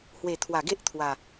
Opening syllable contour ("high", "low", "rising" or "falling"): low